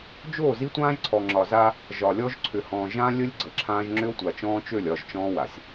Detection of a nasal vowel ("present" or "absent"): present